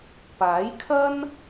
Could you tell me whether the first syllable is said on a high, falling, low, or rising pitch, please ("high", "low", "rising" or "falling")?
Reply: rising